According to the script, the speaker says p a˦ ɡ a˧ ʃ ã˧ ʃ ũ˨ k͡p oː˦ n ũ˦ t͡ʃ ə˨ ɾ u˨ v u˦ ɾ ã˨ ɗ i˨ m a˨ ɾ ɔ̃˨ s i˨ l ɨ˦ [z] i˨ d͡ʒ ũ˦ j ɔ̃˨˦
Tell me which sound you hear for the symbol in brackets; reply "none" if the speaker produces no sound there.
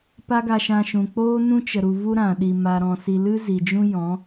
z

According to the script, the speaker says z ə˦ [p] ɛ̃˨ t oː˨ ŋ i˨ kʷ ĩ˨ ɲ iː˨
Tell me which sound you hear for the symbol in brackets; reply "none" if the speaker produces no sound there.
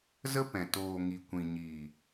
p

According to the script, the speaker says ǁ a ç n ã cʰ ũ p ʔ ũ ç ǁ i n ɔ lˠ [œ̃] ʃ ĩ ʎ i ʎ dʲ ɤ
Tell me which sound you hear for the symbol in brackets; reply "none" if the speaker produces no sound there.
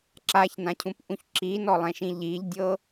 ɛ̃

